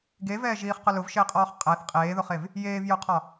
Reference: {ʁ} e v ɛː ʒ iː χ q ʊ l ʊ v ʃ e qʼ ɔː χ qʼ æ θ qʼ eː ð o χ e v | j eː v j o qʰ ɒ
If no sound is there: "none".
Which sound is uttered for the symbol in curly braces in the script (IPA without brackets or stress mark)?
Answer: ɡ